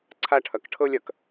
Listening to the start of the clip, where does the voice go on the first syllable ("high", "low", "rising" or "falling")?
high